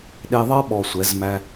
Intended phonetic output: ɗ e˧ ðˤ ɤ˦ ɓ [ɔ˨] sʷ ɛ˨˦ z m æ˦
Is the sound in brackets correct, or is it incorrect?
correct